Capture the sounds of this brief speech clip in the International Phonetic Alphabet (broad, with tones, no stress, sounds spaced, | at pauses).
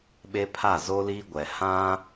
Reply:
ɓ e˦ pʰ a˦˨ z o˦ l iː˦ ɡʷ ɛ˨ h ã˦